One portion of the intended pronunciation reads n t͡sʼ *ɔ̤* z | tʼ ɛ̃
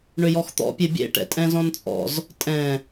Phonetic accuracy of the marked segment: incorrect: ɔ̰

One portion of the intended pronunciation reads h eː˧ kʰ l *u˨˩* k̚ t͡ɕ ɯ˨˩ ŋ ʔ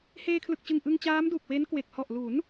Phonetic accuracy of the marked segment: incorrect: ɯ˨˩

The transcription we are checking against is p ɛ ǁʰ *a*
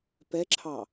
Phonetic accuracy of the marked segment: incorrect: ɑ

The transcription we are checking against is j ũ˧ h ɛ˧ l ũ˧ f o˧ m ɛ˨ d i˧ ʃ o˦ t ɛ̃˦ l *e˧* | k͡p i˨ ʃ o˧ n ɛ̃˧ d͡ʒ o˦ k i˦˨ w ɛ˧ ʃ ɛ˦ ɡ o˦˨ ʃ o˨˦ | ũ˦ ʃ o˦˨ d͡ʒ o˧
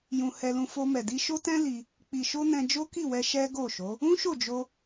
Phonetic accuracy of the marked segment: incorrect: i˧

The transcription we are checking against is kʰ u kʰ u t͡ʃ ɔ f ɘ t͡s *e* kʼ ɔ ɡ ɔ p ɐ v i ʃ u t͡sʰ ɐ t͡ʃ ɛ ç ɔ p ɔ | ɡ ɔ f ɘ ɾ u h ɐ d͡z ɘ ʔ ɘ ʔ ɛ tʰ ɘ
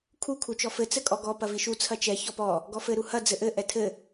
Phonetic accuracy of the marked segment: incorrect: ɘ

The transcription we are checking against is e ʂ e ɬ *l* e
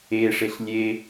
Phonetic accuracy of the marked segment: incorrect: lʲ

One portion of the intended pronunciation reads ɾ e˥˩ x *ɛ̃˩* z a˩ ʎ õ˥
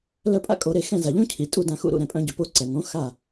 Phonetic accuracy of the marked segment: incorrect: ɛ̃˥˩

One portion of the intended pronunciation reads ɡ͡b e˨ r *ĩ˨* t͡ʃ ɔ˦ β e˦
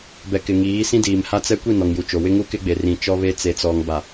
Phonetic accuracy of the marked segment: correct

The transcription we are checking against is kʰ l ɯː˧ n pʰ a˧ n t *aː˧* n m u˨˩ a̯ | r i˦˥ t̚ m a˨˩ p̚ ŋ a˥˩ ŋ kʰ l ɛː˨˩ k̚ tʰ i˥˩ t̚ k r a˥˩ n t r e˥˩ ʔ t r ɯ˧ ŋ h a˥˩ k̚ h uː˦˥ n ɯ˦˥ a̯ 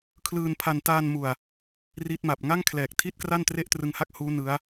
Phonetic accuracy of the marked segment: correct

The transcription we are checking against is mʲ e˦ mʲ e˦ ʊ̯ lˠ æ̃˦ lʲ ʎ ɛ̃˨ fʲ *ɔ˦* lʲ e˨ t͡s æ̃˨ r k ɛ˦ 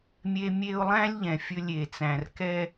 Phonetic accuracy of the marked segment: incorrect: ɵ˦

